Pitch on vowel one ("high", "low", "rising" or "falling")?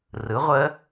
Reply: rising